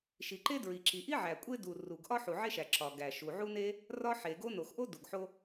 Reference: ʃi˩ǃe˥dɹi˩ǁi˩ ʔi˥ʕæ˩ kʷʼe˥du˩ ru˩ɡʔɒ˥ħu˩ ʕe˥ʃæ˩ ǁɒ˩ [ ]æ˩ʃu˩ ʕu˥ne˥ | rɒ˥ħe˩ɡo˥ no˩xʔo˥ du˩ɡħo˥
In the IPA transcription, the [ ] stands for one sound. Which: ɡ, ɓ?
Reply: ɡ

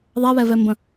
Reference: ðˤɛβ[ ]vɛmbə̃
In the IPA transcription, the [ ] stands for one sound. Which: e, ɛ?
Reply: ɛ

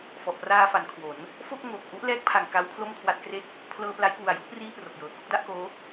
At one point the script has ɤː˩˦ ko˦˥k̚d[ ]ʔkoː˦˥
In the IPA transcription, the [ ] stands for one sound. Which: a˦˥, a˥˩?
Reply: a˥˩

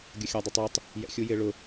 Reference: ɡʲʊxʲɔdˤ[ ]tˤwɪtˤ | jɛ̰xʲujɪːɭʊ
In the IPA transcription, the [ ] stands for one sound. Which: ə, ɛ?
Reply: ɛ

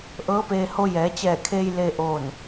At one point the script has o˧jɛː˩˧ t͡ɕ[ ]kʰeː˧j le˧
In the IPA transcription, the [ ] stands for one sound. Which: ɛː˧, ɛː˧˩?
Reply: ɛː˧˩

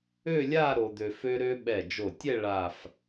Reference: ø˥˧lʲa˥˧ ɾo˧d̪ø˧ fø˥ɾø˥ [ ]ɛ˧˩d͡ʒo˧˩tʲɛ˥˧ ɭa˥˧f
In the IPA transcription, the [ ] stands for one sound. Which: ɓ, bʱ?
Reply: ɓ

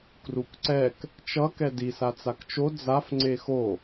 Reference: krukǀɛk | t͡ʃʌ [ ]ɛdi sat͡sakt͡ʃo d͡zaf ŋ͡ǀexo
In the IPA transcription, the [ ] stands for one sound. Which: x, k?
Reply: k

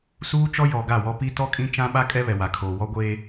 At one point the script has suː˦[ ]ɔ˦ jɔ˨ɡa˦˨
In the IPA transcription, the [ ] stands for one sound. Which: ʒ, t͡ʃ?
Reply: t͡ʃ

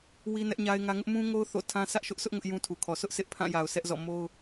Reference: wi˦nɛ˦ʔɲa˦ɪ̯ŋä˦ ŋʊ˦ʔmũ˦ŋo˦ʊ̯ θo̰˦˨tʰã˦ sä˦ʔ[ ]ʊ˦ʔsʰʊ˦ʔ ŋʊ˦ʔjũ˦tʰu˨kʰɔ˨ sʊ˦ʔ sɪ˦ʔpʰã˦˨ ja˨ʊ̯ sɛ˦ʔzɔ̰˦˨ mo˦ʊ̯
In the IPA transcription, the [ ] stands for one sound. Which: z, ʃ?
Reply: ʃ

